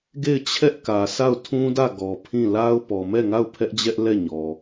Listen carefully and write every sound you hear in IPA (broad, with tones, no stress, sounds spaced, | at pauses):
ɡ e˦˨ ɪ̯ t͡ɕʰ ɛ˦ ʔ k ä˨ s a˦˨ ʊ̯ tʰ ũ˦ d ä˦˨ ɡ ɔ˨ pʰ ĩ˦˨ l a˦ ʊ̯ p ɔ˨ m ɛ˦˨ ŋ a˦˨ ʊ̯ pʰ ɛ˦ ʔ d͡ʑ ɛ˦ ʔ l ɛ˦˨ ɲ ɔ˨